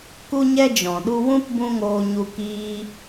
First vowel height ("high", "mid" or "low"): high